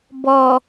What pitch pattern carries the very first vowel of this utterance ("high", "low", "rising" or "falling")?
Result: low